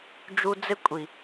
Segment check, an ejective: present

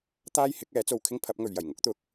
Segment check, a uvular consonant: absent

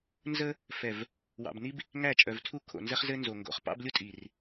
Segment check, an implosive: absent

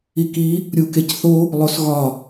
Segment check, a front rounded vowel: absent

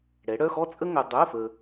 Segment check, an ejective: present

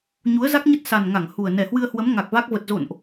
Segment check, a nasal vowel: absent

